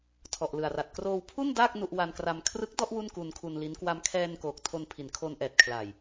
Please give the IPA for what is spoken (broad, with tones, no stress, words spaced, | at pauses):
tʰɔ˨˩ʔlɯ˨˩a̯ra˨˩t̚ kroː˧wpʰu˥˩n daː˥˩k̚ nu˥˩ʔ wa˧nkra˧m kʰrɯ˦˥k̚ dɔ˥˩ʔ wu˥˩nku˧nkʰu˧nli˦˥n kwa˧mkʰɛː˧nkoː˨˩k̚ tʰo˧npʰi˨˩nkʰo˧n ʔɛː˨˩t̚kʰla˨˩j